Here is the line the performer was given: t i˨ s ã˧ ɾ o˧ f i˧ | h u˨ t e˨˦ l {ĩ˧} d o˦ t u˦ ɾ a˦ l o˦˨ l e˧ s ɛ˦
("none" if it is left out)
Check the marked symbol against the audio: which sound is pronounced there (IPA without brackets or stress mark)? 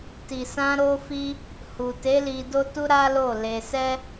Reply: i˧